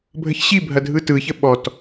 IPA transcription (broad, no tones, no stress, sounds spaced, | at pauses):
bʱ ə ç ɕ i bʱ ɐ dʱ ɯ t ɯ ç ə ɓ ɔ t